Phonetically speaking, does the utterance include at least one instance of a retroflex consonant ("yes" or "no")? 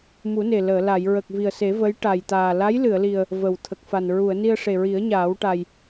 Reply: yes